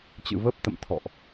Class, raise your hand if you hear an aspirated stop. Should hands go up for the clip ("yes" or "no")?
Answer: yes